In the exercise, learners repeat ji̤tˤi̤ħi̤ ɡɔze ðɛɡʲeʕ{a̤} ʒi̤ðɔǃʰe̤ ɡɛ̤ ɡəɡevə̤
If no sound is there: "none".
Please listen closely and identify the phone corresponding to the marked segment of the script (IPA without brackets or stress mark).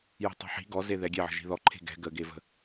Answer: ə̤